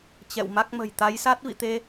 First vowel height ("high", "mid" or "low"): mid